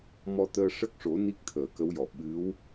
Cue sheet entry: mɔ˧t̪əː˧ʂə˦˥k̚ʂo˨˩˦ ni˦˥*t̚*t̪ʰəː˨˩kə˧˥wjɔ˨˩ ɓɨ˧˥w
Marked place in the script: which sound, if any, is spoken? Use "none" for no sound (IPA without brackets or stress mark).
k̚